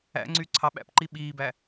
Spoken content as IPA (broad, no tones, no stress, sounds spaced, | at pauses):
æ̰ ŋ͡ǀ y ǀʰ ɑ ɓ æ̰ p ǃ i ɓ iː b æ